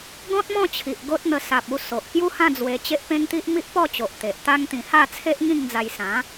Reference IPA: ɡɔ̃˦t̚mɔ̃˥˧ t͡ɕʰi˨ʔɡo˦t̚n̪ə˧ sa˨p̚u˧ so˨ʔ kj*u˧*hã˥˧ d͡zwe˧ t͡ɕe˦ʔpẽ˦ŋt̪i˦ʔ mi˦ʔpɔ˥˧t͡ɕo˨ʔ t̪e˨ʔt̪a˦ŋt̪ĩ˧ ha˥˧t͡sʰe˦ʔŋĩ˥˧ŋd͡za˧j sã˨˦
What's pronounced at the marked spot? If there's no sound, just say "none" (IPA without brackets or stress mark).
u˦